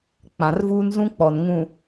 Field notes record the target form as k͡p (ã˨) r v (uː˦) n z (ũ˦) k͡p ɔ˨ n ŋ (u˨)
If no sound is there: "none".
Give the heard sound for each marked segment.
ã˨, uː˦, ũ˦, ũ˨

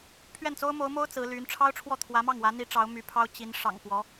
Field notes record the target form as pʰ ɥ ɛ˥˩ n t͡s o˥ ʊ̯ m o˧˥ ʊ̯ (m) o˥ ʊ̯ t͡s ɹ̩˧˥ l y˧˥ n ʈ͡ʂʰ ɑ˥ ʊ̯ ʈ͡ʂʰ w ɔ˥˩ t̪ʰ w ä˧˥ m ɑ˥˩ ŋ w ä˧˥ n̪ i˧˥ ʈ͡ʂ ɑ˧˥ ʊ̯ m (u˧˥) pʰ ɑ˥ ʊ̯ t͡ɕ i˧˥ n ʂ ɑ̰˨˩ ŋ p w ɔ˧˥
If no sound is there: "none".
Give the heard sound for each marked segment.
m, y˧˥

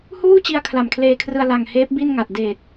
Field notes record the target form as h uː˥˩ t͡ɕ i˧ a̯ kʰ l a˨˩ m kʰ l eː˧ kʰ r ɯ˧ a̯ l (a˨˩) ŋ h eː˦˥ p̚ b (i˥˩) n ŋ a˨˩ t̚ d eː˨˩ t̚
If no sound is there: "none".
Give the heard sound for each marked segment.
a˨˩, i˥˩

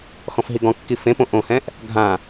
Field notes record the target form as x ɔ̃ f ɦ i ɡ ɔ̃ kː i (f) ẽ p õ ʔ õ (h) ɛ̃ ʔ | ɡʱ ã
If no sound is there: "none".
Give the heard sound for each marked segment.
f, h

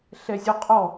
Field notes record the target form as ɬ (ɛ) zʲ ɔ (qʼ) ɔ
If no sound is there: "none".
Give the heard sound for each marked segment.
ɛ, qʼ

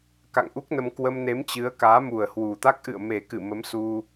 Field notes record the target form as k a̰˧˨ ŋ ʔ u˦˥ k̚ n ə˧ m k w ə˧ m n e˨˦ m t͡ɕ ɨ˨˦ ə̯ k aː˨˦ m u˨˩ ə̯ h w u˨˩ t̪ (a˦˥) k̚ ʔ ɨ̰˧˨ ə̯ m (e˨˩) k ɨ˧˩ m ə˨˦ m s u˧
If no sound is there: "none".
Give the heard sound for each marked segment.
a˦˥, e˨˩

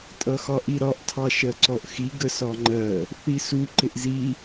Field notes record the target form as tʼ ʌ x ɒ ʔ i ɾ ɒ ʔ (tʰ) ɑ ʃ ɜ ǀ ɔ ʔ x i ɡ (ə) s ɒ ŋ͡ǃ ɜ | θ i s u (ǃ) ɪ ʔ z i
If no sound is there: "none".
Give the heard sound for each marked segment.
tʰ, ə, ǃ

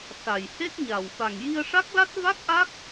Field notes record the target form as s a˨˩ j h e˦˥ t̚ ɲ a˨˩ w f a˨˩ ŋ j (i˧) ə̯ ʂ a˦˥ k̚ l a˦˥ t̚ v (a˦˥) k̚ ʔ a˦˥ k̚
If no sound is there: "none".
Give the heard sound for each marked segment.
i˧, a˦˥

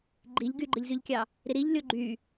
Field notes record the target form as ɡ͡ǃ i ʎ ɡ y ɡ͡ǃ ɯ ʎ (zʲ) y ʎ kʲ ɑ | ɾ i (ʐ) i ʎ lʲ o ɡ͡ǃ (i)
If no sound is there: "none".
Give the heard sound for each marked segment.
z, ɾ, y

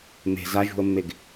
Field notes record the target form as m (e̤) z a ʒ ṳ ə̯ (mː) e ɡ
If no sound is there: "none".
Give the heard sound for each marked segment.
e̤, mː

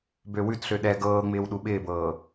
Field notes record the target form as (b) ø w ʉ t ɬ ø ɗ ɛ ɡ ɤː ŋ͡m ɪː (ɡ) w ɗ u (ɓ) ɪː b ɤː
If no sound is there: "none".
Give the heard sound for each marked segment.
b, none, ɓ

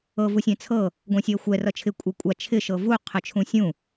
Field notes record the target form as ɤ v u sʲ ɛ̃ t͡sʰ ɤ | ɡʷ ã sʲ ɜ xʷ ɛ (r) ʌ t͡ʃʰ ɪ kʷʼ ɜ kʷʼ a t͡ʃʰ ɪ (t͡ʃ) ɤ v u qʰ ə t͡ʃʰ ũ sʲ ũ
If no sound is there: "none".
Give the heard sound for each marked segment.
r, ʃ

